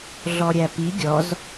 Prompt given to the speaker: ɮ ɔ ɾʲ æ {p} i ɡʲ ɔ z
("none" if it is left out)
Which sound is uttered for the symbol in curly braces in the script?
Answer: p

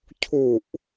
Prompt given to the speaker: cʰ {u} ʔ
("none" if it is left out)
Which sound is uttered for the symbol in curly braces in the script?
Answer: u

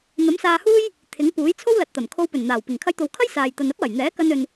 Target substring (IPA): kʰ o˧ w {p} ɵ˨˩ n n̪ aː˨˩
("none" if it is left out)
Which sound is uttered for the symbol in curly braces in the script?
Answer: p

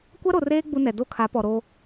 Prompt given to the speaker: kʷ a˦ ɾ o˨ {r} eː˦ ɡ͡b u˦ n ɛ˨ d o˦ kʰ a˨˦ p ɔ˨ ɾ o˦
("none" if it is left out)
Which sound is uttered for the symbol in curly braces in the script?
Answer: r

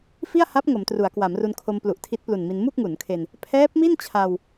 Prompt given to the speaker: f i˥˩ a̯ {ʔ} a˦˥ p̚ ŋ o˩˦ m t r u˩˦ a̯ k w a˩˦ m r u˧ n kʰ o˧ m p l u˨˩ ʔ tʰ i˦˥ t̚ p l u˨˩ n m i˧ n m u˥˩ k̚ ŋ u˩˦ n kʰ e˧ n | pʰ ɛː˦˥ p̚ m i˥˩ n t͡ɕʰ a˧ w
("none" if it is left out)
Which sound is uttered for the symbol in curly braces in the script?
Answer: h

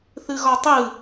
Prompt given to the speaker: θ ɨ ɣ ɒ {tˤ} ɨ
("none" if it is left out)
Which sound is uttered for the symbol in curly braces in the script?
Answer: tˤ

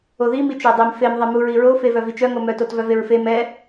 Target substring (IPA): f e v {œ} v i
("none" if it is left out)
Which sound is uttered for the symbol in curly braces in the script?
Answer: œ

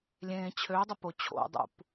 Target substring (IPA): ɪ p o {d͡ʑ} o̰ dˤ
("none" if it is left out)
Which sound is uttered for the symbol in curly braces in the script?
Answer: t͡ɕʰ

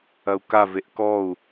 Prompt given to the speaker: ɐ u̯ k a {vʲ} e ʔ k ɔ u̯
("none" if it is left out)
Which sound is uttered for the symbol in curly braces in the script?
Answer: v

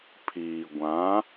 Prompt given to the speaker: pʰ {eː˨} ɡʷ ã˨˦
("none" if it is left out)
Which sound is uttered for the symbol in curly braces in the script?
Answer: iː˨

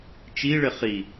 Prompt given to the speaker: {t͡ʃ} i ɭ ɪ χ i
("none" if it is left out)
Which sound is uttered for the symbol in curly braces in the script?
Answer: t͡ʃ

